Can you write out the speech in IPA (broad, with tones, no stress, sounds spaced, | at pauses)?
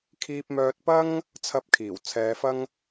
kʰ iː˧ p̚ m œː˧ t̚ p ɐ˥ ŋ | t͡sʰ ɐ˥ p̚ kʰ iː˨˩ w t͡sʰ ɛː˨˧ f ɐ˥ ŋ